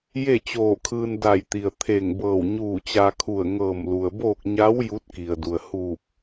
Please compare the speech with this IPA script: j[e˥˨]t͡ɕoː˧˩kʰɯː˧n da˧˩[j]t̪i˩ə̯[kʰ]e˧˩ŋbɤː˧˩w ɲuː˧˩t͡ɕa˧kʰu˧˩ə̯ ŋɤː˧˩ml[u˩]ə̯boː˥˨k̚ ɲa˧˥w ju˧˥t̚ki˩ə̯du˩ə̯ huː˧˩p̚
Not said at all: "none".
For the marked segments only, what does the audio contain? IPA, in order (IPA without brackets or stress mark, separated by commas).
e˥˨, j, t̪ʰ, u˩